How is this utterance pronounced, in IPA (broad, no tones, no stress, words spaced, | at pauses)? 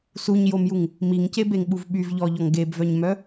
suɲjomjuŋ | miŋcebeŋɓuv ɓyvʎɔʎɔŋ ɡebvœɲmœ